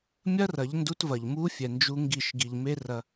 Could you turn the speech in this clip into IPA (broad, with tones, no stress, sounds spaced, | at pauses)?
mʲ ɐ˦ r ɐ˨˦ ʎ n d u˦ t v ɐ˨ ʎ m u˦ fʲ ɛ˨ n d͡ʒ u˦ ŋ ɡ i˦˨ ʃ ɡ i˨ ʎ m e˦ r ɐ˦